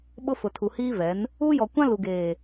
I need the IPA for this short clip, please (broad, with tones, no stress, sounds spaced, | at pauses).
ɓ ʊ˦ f ʊ˨ tʰ u˨ h iː˦ v ɛ˨˦ n | uː˦ j ɔ˨ kʷ ã˦ l u˨ ɡ eː˨